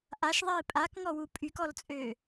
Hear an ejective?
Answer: yes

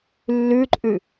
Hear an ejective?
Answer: yes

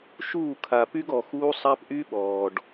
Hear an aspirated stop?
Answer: yes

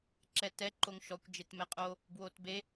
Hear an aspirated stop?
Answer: no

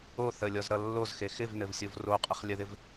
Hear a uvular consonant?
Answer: yes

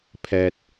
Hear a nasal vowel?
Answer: no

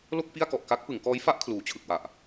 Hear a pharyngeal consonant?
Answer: no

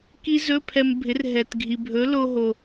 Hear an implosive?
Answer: no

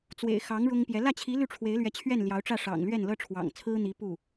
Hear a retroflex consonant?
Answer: yes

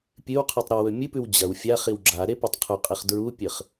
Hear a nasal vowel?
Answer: no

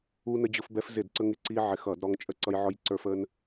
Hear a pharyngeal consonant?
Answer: yes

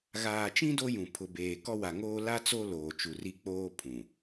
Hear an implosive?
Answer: no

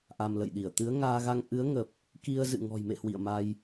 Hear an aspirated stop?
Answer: no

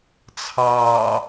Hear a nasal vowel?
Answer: no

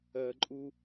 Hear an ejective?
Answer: yes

